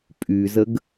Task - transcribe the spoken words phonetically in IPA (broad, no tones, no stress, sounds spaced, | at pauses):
pʼ y z ə ɡ